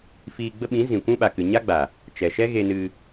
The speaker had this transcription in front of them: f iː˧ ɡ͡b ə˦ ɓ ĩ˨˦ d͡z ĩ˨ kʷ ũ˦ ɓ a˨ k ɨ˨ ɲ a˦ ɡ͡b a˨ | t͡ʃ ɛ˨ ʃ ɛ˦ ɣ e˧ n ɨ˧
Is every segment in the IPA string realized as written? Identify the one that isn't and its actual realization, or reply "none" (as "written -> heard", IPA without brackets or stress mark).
d͡z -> z